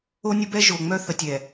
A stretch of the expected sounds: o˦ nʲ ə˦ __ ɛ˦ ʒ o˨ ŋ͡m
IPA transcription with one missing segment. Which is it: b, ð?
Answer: b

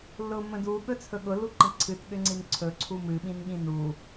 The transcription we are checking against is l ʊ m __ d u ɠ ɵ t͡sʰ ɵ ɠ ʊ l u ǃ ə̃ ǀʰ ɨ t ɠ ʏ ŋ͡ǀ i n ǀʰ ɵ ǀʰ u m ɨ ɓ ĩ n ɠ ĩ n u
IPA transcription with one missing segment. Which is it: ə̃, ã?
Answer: ə̃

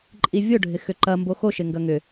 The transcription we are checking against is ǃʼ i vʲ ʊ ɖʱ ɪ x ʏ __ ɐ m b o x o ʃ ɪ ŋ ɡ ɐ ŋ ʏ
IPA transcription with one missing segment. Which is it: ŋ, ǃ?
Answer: ǃ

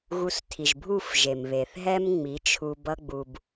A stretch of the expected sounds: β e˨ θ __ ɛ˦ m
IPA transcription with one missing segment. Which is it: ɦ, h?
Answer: ɦ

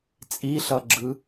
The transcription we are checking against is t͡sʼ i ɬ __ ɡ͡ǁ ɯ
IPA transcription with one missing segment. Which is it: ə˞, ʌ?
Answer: ʌ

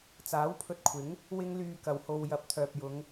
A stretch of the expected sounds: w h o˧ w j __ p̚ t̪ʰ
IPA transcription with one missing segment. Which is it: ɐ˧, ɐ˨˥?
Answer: ɐ˨˥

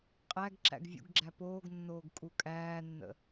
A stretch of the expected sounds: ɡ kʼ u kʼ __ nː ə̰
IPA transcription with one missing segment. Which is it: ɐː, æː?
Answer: æː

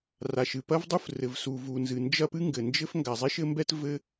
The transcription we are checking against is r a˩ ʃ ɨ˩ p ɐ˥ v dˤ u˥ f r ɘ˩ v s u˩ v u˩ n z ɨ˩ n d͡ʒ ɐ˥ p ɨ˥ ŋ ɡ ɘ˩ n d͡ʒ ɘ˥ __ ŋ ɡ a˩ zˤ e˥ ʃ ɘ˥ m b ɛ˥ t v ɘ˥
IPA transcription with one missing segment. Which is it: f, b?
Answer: f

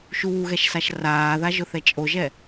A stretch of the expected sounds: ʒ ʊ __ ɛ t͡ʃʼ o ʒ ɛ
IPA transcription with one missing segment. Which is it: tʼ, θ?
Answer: θ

